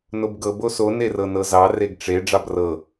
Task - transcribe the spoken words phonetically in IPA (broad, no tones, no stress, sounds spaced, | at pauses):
n o b ɡ ɤ b o s o n e r ɤ n ɤ z ɑ r e ɡ ʈ͡ʂ e ɖ͡ʐ ɑ b r ɤ